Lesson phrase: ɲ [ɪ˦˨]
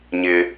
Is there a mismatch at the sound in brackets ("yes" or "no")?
yes